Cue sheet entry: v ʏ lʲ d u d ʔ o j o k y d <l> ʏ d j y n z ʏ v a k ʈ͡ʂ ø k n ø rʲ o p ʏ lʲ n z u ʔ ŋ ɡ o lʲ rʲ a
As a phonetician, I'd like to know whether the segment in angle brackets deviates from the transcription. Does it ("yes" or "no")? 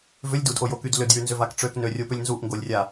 no